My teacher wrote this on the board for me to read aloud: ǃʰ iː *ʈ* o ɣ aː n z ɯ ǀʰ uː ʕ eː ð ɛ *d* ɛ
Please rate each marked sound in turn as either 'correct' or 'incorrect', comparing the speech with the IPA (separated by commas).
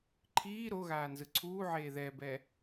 incorrect, incorrect